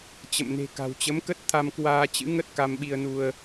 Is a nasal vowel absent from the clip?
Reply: yes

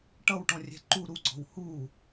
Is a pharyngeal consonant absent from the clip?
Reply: yes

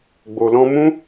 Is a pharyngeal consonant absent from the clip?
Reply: yes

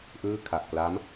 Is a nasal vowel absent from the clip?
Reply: yes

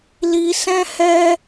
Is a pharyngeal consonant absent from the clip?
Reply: yes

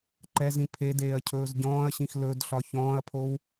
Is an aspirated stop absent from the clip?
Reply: no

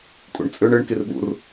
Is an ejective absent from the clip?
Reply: no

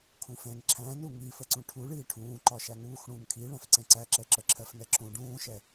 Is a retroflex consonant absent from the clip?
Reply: no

